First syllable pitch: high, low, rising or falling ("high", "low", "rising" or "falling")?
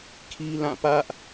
high